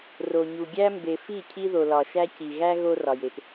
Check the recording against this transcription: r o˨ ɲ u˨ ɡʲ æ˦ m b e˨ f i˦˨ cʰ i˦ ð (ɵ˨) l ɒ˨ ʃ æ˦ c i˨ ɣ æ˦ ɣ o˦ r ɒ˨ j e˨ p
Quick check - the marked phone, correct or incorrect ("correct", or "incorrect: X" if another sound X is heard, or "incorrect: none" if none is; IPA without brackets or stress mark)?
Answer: incorrect: o˨